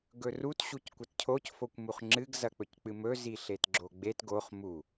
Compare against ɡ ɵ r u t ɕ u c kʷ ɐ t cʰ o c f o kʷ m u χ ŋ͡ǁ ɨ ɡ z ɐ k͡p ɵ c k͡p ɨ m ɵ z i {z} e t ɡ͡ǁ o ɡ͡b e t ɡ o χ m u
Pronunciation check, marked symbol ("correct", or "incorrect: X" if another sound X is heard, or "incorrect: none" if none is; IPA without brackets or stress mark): incorrect: ɬ